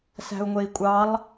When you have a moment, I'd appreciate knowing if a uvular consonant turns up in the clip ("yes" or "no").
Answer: no